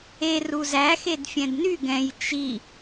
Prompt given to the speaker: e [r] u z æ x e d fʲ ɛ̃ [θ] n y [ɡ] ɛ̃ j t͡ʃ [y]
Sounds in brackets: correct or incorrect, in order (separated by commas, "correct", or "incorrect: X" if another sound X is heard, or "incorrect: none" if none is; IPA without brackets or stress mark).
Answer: correct, incorrect: d, correct, incorrect: i